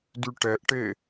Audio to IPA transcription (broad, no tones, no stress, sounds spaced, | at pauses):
d y ʈ ɛ ʔ ʈ e